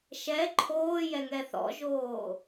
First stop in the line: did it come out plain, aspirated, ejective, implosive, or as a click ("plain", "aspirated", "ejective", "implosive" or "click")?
click